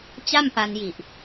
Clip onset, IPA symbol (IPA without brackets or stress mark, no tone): t͡ɕ